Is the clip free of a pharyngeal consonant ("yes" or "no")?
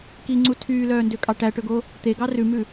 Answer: yes